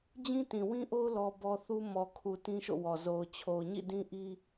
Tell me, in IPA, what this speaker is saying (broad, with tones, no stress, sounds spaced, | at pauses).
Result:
d͡ʑ ĩ˦ t ĩ˨ w ĩ˦ ʔ o˦ ʊ̯ l ɔ˦ b ɔ˦ θ u˦ m ɔ˨ kʰ u˨ t ĩ˦ ʃ o̰˦˨ w ɔ˨ z o˨ ʊ̯ t͡ɕʰ o˨ ʊ̯ ɲ ḭ˦˨ d ĩ˦ ʔ i˦